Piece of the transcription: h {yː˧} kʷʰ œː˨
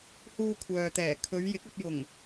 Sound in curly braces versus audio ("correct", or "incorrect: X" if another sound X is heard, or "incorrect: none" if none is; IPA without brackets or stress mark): incorrect: uː˧